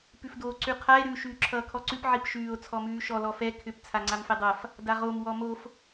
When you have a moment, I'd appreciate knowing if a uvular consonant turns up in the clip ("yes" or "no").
yes